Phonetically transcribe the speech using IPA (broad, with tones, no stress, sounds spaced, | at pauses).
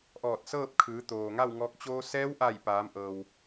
ʔ ɔː˧˩ t̚ s ɤː˥˨ p̚ kʰ ɯː˩˧ t̪ oː˩ ŋ a˥˨ w ŋ ɔː˧ k̚ t͡ɕ oː˧ s ɛː˧˥ w ʔ a˧˩ j p aː˩˧ m ʔ ɤː˩ w